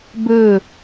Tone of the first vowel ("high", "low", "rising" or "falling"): falling